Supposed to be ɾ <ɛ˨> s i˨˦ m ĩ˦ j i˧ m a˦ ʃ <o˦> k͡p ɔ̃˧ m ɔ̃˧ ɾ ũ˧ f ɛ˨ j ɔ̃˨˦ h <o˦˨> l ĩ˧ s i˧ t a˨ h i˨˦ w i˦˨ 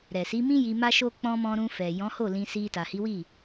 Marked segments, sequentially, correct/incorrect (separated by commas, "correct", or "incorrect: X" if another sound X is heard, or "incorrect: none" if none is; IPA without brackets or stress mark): correct, correct, correct